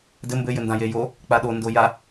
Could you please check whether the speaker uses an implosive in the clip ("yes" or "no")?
yes